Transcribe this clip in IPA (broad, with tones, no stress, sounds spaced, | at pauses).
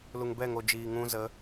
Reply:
l u˨ ŋ b ɛ˦˨ ŋ o˨ d͡ʒ iː˨ ŋ ũ˧ z ə˨˦